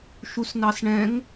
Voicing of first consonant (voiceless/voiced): voiceless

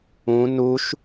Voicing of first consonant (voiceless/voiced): voiced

